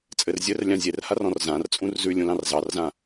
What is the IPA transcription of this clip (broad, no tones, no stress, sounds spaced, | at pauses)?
t͡sʼ ɘ r zʲ ɘ r lʲ ã zʲ e r h a r ɔ̃ r z ã r t͡sʼ ũ r z ʉ lʲ ũ l ɑ̃ r z ɑ r z ã